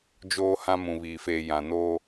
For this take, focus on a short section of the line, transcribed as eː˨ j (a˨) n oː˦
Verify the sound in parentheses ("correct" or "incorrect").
incorrect